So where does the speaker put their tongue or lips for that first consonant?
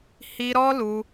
throat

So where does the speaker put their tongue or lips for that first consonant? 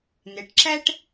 tongue tip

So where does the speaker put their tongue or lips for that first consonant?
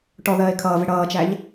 retroflex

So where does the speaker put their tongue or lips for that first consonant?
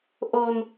throat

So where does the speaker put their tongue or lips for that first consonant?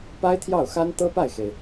lips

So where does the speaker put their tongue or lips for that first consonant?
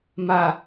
lips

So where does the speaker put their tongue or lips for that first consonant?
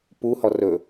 lips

